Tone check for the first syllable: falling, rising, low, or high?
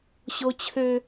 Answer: high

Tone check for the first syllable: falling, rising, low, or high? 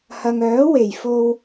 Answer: low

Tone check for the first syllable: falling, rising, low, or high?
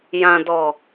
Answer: low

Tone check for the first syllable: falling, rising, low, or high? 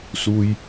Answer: low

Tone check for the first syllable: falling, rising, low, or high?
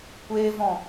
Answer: high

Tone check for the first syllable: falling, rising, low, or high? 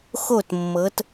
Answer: falling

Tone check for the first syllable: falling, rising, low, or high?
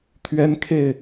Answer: high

